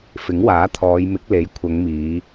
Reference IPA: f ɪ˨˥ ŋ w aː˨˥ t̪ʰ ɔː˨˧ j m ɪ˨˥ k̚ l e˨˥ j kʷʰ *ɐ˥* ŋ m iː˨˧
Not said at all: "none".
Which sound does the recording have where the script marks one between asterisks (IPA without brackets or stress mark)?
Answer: ɐ˨˧